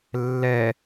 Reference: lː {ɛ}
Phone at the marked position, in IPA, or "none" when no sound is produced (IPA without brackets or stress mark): ɛ